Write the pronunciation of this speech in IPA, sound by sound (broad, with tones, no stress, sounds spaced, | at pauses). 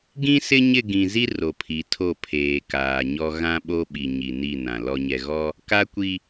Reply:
ɡ ĩ˦ s ɪ˦ ɲ ɪ˦˨ ɡ ĩ˨ z i˦ r o˨ pʰ i˨˦ tʰ o˦˨ pʰ eː˨ k aː˨ ɲ ɔ˦ ɣ ã˦ ɓ o˦ ɓ i˨ ɲ i˨ n i˦˨ n ã˨ l ɔ˨ ɲ ɛ˨ ɣ ɔ˦ | k a˦ kʷ i˦